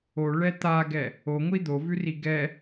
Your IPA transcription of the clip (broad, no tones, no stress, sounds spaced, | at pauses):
o ɭ ɛ t̪ a ɡ ɛ | o ŋʷ i d̪ o v ʉ r i ɡ ɛ